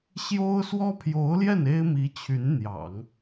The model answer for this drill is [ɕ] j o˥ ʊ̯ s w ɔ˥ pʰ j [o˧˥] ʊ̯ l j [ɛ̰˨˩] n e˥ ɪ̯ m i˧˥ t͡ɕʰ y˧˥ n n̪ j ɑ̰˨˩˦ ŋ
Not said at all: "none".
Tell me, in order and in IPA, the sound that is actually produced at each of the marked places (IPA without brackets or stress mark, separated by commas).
ɕ, o˧˥, ɛ˥˩